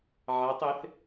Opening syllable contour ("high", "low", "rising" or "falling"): rising